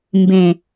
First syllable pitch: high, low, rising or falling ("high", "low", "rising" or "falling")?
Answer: low